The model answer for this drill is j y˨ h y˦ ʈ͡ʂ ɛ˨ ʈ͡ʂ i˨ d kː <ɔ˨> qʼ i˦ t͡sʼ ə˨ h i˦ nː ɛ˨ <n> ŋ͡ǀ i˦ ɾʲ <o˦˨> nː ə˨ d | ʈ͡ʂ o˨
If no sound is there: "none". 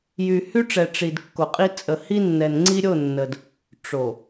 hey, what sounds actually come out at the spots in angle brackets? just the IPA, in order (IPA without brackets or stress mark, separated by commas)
o˨, n, o˦˨